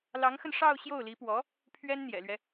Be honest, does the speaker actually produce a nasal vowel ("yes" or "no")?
no